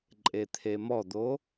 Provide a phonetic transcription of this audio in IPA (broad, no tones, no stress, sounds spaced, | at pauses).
ǃʼ e t̪ʰ e m ɔ d̪ o